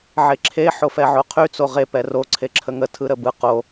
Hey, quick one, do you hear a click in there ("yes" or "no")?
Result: yes